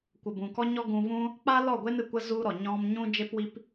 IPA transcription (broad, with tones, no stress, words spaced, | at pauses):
kʷə˨bũ˨kɔ˦ɲɔ˦ ɡũ˧vũ˦ | k͡pa˦lɔ˦˨ɡʷe˦n ɨ˨kʷə˦ zu˦ɾɔ˨ ɲɔ̃˦m ɲũ˦ d͡ʒe˦pwi˦p